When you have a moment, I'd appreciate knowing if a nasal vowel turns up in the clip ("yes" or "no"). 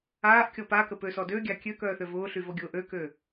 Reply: no